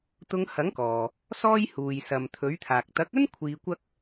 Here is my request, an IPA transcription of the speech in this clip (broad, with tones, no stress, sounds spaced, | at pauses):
t̪ ʊ˧ ŋ h ɐ˨˥ ŋ k ɔː˨ | s ɔː˥ j h uː˨ j s ɐ˨ m t̪ʰ ɵ˨˥ ɥ t̪ʰ aː˨ k̚ t̪ ɐ˨˥ k̚ ɵ˥ n kʷʰ iː˧ kʷ ɐ˥ k̚